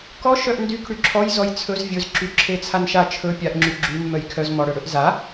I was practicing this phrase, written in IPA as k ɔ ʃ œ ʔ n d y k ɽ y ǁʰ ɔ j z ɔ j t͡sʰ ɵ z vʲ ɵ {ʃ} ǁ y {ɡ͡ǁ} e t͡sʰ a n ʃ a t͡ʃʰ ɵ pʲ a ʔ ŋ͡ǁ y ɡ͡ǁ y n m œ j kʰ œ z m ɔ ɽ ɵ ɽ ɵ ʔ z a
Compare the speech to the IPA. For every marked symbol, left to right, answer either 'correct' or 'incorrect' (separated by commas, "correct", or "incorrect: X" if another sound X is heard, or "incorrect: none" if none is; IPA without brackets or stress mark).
incorrect: z, incorrect: ǁʰ